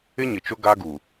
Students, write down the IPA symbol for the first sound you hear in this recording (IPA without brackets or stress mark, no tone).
ɪ